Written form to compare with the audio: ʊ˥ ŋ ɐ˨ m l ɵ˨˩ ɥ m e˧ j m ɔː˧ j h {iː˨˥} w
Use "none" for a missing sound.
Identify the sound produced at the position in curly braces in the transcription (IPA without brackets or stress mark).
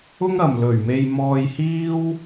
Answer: iː˥